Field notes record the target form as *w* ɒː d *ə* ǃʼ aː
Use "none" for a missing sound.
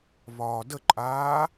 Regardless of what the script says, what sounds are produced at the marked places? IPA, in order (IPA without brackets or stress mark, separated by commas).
β, ə